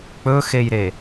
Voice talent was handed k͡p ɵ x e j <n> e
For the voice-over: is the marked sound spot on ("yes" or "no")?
no